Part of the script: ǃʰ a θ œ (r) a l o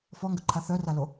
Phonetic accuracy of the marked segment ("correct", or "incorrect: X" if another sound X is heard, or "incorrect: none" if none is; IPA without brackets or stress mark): correct